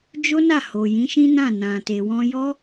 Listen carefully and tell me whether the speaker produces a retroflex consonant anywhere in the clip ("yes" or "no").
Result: no